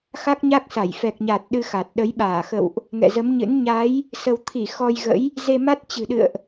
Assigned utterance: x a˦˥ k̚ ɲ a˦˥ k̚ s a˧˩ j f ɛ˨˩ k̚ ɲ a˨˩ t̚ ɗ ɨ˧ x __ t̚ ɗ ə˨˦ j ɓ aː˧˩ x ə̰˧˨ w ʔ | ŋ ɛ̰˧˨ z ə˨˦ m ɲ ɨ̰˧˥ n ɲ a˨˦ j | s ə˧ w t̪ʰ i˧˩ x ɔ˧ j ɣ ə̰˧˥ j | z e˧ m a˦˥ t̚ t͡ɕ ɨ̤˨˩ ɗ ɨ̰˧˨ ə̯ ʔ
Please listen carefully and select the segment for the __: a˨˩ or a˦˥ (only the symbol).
a˨˩